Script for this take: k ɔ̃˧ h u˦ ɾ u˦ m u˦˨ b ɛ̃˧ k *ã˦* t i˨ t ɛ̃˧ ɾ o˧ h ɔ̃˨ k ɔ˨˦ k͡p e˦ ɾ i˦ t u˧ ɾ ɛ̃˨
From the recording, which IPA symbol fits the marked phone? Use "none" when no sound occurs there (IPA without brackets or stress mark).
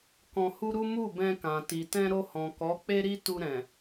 ã˨